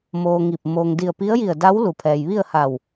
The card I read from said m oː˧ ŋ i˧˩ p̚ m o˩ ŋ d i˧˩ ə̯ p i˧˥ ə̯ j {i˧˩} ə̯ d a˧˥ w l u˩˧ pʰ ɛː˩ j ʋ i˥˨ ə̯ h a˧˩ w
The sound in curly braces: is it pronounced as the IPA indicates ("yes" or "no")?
yes